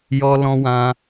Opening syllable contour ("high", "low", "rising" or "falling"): high